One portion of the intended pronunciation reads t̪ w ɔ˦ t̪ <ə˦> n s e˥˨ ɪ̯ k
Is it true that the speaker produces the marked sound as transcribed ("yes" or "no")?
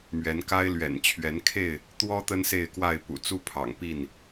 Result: yes